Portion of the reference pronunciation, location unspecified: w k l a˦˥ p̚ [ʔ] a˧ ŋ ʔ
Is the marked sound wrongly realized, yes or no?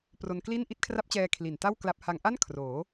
yes